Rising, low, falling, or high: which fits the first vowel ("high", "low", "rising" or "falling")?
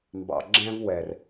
low